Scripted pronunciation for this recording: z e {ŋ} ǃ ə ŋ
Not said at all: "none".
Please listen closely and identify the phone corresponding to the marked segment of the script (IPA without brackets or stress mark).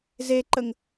none